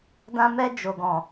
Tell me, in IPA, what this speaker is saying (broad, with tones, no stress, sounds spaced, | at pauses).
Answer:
d ã˧ m ɛ˧ d͡ʒ o˨ ɡ ɔ̃˨